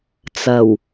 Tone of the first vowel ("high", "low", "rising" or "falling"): low